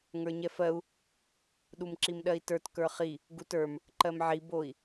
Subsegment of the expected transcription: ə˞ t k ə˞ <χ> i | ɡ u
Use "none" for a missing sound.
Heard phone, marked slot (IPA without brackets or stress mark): χ